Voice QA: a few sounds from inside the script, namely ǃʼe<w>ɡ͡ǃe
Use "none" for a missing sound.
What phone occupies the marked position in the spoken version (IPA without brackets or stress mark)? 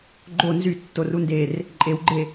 w